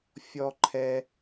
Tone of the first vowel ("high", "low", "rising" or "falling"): high